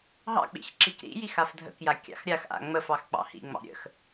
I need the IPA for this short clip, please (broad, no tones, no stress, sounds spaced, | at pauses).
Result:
ɦ ɑ̰ k͡p ḭ x ǁ i k ɾ ḭ j i x a f dʱ ə̰ k j a kʲ ɑ̰ x ɾʲ a x ʔ a̰ ŋ͡m ə f ɑ x k͡p ɑ̰ h ḭ ŋ͡m ɑ̰ ɾʲ ə̰ x